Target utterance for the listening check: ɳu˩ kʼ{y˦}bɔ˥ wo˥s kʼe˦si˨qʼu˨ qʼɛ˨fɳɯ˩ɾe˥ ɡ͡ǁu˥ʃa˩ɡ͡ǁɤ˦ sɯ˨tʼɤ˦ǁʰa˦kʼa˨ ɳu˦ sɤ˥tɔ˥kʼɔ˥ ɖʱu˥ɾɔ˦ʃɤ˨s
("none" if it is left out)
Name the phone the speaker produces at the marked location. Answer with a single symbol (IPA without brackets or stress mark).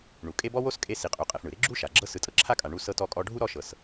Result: e˦